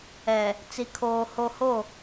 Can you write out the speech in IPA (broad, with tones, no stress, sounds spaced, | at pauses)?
ɛ˨ | t͡s i˨ kʰ oː˨ h o˨ h o˦˨